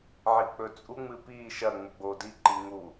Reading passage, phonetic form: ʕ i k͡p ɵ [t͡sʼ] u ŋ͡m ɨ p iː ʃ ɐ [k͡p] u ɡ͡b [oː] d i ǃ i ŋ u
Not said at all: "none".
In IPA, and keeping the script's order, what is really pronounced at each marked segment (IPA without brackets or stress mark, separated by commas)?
t͡sʼ, ŋ͡m, oː